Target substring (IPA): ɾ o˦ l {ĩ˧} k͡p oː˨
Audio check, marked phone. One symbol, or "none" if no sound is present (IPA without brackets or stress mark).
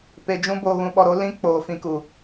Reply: ĩ˦